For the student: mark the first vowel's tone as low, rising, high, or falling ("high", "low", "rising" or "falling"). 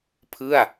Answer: falling